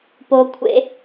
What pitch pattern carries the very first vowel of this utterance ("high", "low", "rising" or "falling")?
high